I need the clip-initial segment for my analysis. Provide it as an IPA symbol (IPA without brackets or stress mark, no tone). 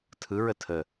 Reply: tʰ